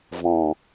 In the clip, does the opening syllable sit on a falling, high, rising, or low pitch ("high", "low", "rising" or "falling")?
low